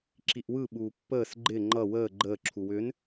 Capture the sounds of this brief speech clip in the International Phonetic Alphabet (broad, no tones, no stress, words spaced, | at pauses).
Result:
ǁiʔwɯ ɓuːpːəːs ɡ͡ǃɪ ŋ͡ǃʌ wəː ɡ͡ǃəː ǁʰuwʏn